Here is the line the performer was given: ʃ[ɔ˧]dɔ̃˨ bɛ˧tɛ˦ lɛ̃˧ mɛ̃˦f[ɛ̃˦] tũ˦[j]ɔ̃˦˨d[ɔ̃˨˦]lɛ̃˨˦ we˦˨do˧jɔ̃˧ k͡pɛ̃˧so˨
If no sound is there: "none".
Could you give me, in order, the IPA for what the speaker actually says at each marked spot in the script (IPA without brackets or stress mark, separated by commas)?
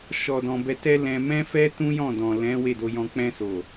ɔ˨, ɛ˦, j, ɔ̃˨